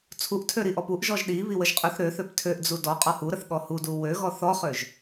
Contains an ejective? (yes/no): yes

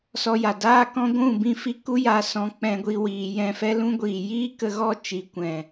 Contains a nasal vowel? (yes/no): yes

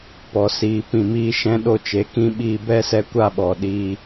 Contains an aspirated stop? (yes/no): no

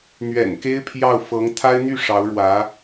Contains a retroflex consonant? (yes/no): yes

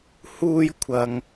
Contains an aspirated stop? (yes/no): yes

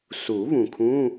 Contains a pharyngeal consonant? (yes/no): no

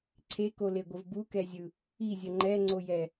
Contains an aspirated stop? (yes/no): yes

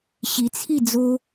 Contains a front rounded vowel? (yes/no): no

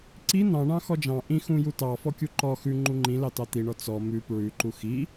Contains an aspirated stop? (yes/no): no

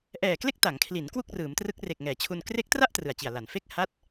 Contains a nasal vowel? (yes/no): no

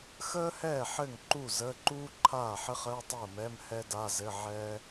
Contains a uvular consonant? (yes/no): yes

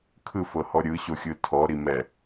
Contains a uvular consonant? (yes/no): no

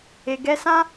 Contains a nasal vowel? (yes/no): yes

